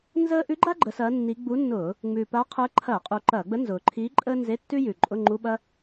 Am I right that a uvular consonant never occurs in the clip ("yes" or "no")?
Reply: no